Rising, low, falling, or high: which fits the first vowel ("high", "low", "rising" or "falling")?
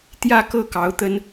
falling